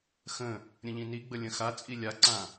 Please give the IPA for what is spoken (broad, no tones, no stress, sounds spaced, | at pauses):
x ə̃ | ɾʲ ə̃ ʎ ĩ n i ɡ͡b ə lʲ ə̃ x a t͡sʼ i lʲ a ǀ ã